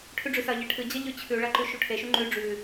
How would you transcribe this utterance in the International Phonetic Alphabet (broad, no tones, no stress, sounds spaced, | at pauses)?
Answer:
ʈʰ ʉ ɖ͡ʐ ʉ s ɐ ʎ e ʈʰ ɨ d͡ʑ ɐ ʎ ʉ t͡ɕʰ ʉ ɭ ɐ ǃ ʉ ʃ u ʈʰ e ʃ u ŋ͡ǃ ʉ ɖ͡ʐ ʉ